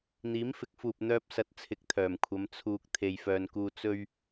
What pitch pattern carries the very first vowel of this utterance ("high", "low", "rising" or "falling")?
rising